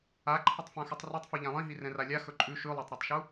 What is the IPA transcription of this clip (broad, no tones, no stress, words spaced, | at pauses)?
aǃʰətˤfãxʉtˤ ritˤfi ʎãlˠĩɦi rɛ̃ralʲa xɵǃʼʉ ʃʉlˠatˤɾɛtˤʃu